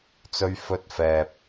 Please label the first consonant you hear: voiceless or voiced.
voiceless